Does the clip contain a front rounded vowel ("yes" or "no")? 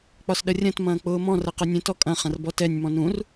no